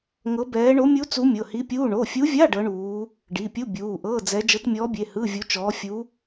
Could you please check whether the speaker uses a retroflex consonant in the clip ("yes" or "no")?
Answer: yes